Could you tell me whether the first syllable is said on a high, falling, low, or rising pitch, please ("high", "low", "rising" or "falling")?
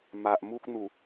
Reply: low